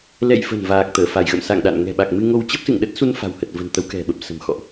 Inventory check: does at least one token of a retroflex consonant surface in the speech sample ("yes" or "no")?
no